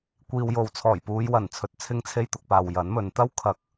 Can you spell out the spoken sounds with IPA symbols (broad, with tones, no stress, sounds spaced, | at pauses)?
kʷ iː˨ w j o˨ w t͡sʰ ɔː˨˩ j p uː˨˧ j w ɐ˨˩ n t͡sʰ ɵ˨ t̚ t͡sʰ ɪ˧ ŋ t͡sʰ e˧ j t̪ ʊ˨ k̚ p aː˨ w j ɐ˨˥ n m ɵ˨ n t̪ ɐ˥ w kʰ ɐ˨˥ k̚